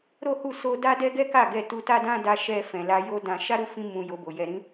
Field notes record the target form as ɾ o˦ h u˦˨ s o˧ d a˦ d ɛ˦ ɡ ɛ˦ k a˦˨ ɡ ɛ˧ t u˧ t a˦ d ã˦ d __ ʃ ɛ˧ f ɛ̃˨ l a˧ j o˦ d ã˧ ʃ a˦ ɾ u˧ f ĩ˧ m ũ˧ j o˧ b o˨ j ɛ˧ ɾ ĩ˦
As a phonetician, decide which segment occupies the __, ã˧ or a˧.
a˧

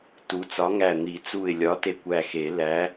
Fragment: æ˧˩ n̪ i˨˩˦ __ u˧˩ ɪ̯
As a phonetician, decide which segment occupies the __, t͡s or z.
t͡s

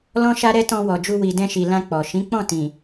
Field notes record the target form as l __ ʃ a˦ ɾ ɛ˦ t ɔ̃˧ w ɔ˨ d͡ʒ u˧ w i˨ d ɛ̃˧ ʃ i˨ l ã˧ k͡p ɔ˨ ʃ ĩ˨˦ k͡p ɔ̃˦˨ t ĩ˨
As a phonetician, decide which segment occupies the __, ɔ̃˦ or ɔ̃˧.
ɔ̃˦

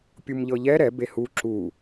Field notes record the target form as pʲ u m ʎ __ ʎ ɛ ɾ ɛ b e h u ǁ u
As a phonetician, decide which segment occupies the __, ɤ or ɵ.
ɤ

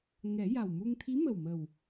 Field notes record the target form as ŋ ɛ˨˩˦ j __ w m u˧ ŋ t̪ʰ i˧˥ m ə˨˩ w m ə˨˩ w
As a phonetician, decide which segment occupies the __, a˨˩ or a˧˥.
a˨˩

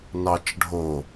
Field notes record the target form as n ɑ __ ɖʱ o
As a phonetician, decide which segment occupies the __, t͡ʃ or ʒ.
t͡ʃ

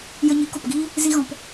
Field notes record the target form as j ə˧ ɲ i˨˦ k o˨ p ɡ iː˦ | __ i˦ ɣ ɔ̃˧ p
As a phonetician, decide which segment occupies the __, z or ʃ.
z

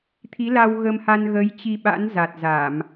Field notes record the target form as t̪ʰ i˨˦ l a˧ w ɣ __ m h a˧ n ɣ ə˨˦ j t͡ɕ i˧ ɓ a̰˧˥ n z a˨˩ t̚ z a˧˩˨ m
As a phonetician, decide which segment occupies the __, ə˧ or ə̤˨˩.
ə˧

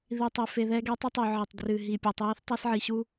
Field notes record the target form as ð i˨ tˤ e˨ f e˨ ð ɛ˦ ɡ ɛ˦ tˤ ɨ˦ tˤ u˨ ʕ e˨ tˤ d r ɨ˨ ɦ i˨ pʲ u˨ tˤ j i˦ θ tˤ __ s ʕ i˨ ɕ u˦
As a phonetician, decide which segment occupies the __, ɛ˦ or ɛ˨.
ɛ˦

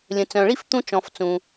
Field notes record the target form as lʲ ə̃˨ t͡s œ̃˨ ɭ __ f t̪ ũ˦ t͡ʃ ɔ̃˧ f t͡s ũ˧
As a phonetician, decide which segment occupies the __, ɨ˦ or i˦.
i˦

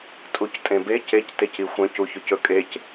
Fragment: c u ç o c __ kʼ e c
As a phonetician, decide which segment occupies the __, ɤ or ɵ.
ɵ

